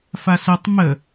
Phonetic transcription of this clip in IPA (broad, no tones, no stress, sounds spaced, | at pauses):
f a s ə tˤ m ə